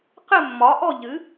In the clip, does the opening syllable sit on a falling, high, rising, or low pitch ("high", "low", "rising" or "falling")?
falling